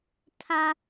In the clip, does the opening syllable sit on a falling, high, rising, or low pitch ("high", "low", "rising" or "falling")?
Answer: high